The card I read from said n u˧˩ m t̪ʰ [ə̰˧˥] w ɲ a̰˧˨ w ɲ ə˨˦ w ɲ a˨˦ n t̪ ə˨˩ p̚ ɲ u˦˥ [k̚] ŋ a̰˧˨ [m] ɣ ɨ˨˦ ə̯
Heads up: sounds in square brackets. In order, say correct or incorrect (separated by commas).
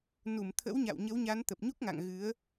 correct, correct, incorrect